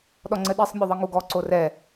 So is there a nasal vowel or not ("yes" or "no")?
no